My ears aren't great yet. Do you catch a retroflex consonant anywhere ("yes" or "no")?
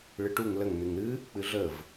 yes